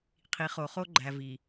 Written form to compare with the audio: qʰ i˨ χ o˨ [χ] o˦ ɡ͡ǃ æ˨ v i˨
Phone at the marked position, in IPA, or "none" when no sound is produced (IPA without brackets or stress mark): χ